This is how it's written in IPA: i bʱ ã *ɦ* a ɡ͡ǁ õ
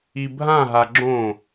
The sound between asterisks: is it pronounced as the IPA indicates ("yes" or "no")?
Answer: yes